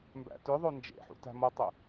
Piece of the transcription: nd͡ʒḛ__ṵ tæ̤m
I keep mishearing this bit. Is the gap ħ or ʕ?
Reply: ħ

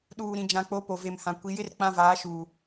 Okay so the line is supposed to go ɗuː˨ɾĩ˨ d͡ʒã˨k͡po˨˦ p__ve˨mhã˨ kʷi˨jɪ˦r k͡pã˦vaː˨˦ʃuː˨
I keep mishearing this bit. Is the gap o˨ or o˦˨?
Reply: o˨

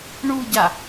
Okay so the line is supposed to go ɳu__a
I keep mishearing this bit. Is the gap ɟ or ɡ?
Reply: ɟ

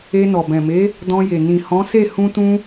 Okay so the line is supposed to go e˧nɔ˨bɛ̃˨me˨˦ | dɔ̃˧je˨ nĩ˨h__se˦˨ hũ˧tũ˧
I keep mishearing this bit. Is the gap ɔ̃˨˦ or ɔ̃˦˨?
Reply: ɔ̃˨˦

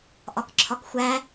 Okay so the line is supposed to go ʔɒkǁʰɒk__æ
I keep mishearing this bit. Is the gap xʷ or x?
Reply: xʷ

